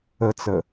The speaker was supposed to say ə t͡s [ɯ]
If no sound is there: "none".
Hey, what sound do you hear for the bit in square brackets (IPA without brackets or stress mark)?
ə